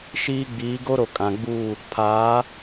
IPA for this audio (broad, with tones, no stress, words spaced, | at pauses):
ʃiː˦ ɡ͡biː˨˦ɡo˦ɾo˨ kʼã˨ɡ͡buː˦˨ | pʰaː˨˦